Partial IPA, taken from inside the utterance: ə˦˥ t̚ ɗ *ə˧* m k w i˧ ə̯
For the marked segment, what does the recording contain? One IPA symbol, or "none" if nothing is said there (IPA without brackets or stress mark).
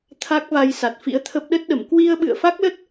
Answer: ə˧˩